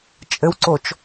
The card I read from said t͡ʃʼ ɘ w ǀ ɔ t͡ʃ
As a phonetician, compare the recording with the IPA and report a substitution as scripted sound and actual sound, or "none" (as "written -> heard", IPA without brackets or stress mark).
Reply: ɔ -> o